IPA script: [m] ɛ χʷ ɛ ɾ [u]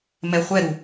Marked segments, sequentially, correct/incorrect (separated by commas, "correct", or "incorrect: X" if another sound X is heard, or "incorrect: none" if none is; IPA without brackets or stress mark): correct, correct